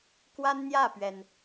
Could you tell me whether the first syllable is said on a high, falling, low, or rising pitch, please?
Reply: high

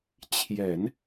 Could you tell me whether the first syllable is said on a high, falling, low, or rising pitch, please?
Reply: low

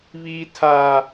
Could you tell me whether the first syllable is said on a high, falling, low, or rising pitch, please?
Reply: high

